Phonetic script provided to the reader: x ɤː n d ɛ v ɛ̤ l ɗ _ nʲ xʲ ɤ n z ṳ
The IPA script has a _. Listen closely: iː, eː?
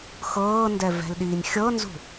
iː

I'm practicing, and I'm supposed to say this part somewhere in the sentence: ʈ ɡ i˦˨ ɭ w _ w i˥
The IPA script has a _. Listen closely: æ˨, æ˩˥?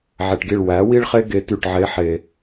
æ˩˥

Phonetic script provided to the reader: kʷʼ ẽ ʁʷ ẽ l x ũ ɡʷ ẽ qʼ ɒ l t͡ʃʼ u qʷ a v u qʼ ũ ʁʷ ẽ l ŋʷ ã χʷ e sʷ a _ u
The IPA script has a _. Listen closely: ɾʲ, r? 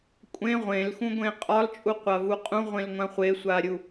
ɾʲ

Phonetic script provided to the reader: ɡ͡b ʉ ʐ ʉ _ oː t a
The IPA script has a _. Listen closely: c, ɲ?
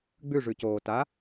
c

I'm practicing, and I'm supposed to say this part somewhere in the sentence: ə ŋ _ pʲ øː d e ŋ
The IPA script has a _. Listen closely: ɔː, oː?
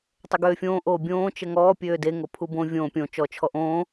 ɔː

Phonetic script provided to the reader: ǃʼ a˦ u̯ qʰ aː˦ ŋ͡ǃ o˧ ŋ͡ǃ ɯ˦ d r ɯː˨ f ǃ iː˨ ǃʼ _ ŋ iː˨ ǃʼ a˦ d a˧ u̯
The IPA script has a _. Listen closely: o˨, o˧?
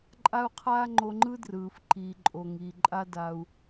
o˨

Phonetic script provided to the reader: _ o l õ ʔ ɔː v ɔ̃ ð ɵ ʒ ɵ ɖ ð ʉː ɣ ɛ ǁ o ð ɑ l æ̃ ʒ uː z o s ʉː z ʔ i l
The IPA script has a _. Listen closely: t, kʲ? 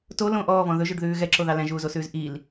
t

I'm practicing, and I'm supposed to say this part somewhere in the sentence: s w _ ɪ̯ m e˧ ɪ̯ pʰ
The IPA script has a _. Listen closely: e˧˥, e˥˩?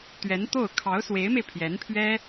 e˧˥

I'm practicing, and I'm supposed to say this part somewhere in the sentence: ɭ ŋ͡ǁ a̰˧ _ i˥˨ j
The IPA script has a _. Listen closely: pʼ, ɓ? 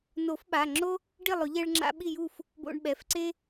ɓ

